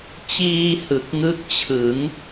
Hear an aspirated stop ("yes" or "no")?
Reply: yes